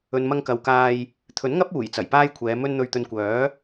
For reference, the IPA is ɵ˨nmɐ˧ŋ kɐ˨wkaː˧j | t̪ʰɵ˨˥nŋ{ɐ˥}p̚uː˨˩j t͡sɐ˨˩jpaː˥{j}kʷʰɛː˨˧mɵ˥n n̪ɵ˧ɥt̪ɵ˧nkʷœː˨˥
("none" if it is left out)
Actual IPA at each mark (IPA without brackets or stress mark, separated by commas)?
ɐ˥, j